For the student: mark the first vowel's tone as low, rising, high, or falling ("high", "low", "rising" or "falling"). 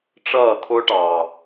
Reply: falling